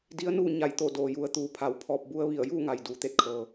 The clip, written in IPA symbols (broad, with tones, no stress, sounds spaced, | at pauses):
d i˧˥ ə̯ n uː˥˨ ɲ a˧˩ j t̪ o˧˩ d oː˩ j u˩˧ ə̯ t̪ uː˩˧ pʰ a˩ w pʰ ɔː˧ p̚ b u˧ ə̯ ʋ i˧˩ ə̯ j uː˥˨ ŋ a˩ j d uː˩˧ t̪ e˧ t̚ kʰ ɤː˩